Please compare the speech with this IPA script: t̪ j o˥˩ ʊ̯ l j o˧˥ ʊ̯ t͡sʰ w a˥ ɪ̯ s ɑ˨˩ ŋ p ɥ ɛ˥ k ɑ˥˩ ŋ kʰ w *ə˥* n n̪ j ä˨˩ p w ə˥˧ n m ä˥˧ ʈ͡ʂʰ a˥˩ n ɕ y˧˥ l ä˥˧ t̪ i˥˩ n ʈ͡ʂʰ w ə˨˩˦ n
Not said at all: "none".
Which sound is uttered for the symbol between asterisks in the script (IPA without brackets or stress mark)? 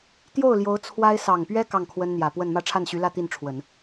ə˥